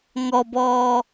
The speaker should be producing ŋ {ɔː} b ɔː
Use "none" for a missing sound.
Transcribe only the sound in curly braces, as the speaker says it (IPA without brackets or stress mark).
ɔ